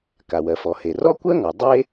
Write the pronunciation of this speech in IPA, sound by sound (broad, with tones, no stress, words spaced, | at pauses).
ka˩wɜ˩fɔ˩ he˩ rɔ˥kʷɜ˥ŋɔ˩ dˤe˥